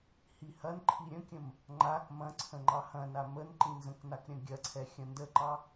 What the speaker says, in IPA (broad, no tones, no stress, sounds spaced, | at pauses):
h i h ɐ n ǃʰ i ɾʲ ə̃ kʲ ə̃ m | ŋ͡ǃ a k m ɐ̃ ǀʰ ə̃ ŋ͡ǃ ɑ h ɐ̃ n a m ə n ǃ ĩ n z ə̃ k n a k ɾʲ ɐ̃ ɡʲ ɐ ǀʰ ɛ xʲ ɐ̃ n d ə ǃ ɑ